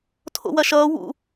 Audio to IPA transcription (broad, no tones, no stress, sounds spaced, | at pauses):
tʰ o̰ w ɐ ʃ ʌː w ṵ